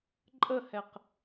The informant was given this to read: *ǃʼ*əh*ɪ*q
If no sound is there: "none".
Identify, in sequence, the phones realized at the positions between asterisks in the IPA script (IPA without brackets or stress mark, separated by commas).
ǃʼ, ɛ